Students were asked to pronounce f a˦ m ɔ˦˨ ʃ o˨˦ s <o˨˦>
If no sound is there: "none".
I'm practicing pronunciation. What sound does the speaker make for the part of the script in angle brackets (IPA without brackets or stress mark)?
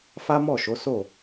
o˦˨